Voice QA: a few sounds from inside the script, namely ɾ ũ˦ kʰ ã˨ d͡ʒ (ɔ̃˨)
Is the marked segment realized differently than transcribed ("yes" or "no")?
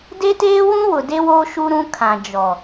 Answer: yes